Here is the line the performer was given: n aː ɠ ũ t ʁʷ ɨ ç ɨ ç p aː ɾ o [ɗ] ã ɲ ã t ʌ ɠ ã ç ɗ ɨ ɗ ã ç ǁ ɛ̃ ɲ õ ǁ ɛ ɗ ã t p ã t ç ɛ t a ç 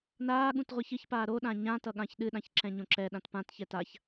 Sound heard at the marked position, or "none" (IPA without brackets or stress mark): ɗ